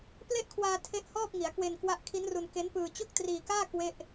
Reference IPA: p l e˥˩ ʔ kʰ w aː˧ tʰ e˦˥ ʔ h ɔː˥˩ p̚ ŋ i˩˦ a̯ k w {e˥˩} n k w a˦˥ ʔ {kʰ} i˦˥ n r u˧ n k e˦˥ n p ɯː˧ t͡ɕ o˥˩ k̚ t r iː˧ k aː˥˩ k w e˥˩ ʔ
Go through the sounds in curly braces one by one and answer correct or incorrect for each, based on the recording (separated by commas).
incorrect, correct